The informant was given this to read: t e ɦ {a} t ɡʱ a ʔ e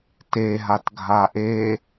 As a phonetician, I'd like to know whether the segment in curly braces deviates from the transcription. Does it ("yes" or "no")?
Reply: no